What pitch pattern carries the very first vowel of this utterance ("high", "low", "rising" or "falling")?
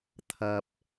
low